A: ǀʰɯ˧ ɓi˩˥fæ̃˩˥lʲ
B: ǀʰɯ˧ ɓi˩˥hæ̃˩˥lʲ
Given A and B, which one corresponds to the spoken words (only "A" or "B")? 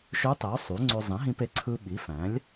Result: A